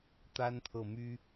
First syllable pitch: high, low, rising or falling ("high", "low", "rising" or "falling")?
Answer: high